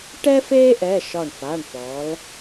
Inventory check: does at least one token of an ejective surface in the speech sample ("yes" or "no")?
no